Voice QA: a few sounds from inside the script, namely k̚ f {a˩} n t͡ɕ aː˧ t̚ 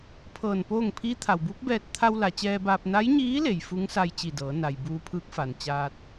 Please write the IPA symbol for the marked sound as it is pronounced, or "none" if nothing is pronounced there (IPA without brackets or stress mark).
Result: a˩